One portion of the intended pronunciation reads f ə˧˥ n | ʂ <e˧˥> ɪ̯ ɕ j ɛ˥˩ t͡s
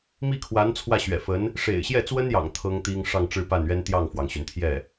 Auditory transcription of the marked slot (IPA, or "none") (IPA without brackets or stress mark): ḛ˨˩